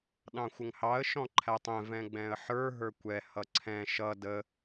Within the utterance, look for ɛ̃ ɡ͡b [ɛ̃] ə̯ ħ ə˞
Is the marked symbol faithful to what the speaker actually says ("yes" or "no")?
yes